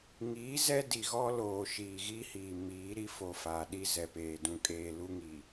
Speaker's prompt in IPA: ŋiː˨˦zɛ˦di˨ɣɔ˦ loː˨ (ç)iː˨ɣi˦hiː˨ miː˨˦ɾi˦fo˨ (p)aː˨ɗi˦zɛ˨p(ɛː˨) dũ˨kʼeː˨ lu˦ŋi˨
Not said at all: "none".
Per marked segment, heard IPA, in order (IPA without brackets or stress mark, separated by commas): ʃ, f, eː˨